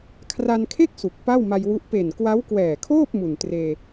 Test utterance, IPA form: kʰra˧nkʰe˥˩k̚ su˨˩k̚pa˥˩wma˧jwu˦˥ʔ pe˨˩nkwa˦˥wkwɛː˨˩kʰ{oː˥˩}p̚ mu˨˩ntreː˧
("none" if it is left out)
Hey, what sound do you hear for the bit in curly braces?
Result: oː˥˩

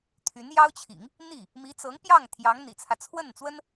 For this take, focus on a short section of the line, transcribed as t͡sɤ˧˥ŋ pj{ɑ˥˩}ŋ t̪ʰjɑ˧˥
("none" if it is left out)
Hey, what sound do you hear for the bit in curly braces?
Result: ɑ˥˩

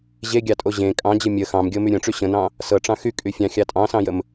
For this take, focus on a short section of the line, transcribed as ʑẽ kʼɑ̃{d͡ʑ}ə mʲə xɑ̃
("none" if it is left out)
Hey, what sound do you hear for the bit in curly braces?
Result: d͡ʑ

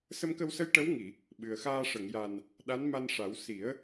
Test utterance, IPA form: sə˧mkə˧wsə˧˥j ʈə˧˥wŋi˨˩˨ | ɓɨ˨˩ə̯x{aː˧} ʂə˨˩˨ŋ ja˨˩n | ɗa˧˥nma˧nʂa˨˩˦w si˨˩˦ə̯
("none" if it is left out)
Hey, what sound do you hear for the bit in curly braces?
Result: aː˧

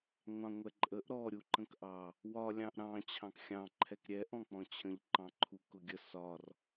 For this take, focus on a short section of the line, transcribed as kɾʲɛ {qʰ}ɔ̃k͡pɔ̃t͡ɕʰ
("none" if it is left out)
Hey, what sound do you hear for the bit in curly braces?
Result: ʔ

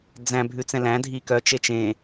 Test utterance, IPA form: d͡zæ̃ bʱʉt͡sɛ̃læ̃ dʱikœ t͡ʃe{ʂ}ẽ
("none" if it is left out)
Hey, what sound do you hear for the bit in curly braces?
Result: t͡ʃ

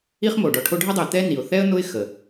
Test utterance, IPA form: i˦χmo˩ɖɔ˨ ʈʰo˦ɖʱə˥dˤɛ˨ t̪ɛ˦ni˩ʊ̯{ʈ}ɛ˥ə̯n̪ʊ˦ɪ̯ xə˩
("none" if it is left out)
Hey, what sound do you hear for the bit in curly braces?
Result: θ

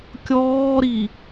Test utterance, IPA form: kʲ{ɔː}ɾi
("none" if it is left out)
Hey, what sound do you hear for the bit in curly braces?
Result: ɔː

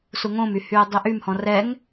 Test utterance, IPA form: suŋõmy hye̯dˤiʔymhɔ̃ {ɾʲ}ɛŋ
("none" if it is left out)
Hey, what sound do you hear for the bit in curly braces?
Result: r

